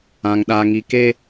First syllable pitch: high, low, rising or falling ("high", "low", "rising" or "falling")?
high